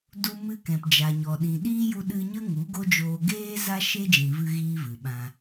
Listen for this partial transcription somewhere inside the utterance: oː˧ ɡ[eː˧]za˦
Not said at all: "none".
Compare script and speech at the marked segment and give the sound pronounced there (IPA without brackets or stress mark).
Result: eː˦